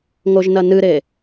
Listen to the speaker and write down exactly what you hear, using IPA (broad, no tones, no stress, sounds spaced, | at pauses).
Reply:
ŋ o ʒ n ɐ n ɨ ɾ e